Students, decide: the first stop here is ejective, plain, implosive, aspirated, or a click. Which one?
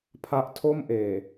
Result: aspirated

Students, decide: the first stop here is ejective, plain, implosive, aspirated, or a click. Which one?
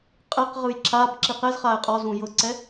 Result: ejective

